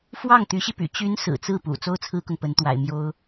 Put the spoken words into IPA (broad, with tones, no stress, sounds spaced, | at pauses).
f w ɑ˥˩ ŋ t̪ y˧˥ ɕ i˧ p y̰˨˩ t͡ɕ y˧˥ n s ɹ̩˨˩ t͡s ɹ̩˥˩ p ṵ˨˩ t͡s o˥ ʊ̯ t͡sʰ ɹ̩˥ k ʊ˨ ŋ p ə˧˥ n t̪ w a̰˨˩ ɪ̯ m j o˥ ʊ̯